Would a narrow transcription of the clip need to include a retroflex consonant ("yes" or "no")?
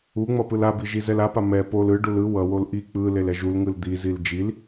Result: yes